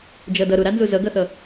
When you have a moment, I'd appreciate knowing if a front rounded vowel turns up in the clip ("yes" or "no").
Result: no